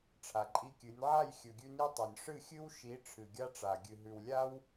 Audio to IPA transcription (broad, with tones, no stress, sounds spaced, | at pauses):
ʈ͡ʂʰ a˨ ǃʼ i˧ kʲ ɨ˨˦ nʲ ʕ a˦˨ j xʲ ɵ˨ ɡʲ ʉ˧ n i˧ tˤ o˨ nʲ ʂ ɨ˦˨ xʲ ɨ˦ w ʃ i˨˦ ʈ͡ʂʰ ɨ˨ ɡʲ a˦ ʈ͡ʂ a˨ ɡʲ ɨ˨ ɦ ʉ˨ w lʲ a˦ w